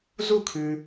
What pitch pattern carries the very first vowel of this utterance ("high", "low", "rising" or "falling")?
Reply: falling